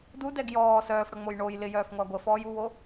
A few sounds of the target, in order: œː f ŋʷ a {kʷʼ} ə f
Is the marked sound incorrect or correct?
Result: incorrect: ɡʷ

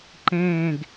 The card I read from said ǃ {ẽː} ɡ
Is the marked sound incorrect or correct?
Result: correct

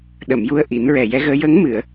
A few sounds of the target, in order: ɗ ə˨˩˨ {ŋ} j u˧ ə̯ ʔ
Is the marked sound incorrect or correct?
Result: incorrect: m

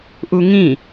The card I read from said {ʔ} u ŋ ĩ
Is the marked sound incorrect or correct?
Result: correct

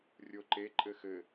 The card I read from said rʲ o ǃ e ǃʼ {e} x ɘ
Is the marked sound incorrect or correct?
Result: incorrect: ɘ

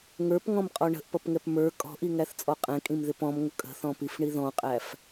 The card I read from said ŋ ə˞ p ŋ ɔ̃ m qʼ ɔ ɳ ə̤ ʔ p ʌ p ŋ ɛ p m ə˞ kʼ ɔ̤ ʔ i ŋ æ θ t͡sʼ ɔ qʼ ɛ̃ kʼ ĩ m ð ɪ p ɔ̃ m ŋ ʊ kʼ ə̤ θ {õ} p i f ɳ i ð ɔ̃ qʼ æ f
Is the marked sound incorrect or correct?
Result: incorrect: ɔ̃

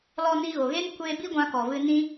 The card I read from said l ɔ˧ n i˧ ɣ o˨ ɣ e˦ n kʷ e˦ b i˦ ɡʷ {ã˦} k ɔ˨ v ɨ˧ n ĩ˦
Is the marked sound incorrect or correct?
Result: incorrect: ã˧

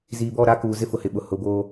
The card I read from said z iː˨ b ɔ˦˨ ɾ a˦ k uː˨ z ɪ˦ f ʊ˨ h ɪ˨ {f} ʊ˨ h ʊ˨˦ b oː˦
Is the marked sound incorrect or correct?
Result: incorrect: ɓ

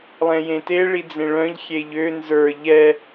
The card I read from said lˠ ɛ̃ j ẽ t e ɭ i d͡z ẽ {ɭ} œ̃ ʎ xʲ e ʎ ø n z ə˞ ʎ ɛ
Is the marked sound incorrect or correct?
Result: correct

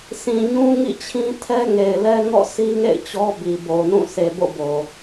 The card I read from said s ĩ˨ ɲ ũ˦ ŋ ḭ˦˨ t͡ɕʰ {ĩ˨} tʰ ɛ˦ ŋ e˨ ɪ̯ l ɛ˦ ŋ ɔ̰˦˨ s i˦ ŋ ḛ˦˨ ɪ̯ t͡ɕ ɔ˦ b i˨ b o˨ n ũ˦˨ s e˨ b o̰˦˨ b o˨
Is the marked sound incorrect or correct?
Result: incorrect: ĩ˦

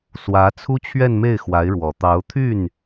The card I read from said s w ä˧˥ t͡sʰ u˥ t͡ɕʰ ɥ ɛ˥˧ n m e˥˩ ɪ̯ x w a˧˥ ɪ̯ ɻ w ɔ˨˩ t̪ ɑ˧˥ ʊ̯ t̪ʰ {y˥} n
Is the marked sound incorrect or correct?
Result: incorrect: y˥˩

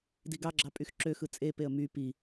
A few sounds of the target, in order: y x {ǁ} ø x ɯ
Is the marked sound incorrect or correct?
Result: correct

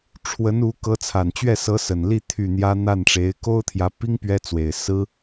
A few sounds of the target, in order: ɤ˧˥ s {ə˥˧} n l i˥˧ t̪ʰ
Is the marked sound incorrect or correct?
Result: incorrect: ə˨˩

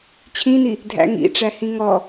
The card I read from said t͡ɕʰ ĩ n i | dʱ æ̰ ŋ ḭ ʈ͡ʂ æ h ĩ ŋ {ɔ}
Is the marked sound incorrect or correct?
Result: correct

